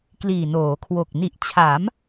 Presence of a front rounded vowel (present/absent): absent